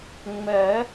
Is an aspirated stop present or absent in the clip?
absent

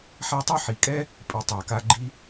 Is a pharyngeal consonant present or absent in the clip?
present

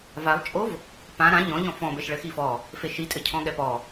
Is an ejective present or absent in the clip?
present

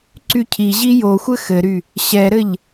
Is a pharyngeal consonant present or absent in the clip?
absent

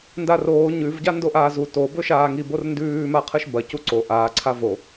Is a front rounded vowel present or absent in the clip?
absent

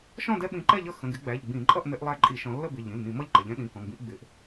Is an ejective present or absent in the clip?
present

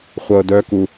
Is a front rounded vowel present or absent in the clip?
present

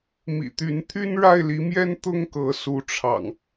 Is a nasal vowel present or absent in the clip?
absent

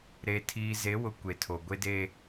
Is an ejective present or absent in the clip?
absent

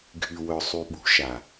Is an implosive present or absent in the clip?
present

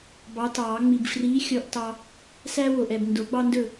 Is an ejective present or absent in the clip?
absent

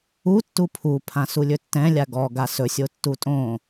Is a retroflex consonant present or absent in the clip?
absent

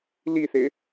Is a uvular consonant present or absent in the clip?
absent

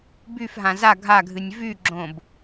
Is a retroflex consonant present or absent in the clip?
absent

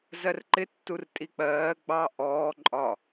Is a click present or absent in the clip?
present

